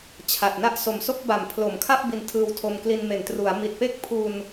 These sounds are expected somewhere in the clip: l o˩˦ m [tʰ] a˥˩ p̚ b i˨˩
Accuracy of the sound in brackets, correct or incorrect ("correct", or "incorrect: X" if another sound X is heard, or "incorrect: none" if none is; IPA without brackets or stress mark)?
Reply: incorrect: kʰ